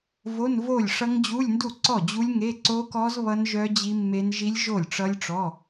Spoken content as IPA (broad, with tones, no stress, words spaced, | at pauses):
vo˧˥˧nvo˥˩lʲʂʌ˦˥ŋ d͡ʑu˧˥˧lʲndu˥˩ǀɔ˥˩ d͡ʑu˦˥lʲŋe˧˥˧ ǀo˦˥kɔ˦˥z βʌ˦˥nʒœ˦˥ d͡ʑi˦˥mːe˦˥n ʒi˦˥lʲʒo˥˩lʲʈ͡ʂʌ˦˥lʲʈ͡ʂɔ˧˥˧